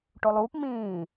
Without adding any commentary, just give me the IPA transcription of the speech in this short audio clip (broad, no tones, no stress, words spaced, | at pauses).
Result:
ʈolˠuːp mĩː